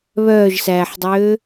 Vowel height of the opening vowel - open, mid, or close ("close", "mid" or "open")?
mid